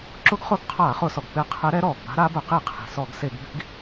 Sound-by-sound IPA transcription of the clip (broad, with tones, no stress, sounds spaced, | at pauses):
ǁ ʊ˧˥ ɡ χ ʊ˧˥ ɡ qʰ aː˧˩˧ χ ʊ˧˩˧ s ɔ˩ ɡ p ɪ˧˥ qʰ ɛ˧˥ ɾ ɛ˧˥ ɾ ɔː˩ ɡ b a̤˧˥ ɾ a˧˥ b ʊ˧˩˧ q i˧˩˧ qʰ i̤˩ s ɔ˧˩˧ ɡ s e˧˩˧ ɡ b i̤˧˥ ɡ